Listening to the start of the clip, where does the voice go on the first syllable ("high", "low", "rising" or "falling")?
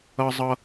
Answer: high